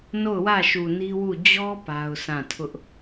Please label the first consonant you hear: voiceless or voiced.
voiced